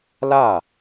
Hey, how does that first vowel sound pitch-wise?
falling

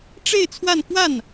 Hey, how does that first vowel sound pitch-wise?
falling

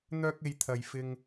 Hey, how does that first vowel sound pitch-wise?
high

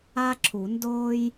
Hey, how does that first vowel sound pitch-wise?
high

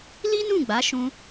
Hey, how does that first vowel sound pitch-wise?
high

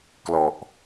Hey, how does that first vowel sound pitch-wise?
low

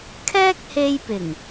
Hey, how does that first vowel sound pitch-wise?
high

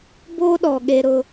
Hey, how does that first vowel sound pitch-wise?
high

